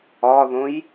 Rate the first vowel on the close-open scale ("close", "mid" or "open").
open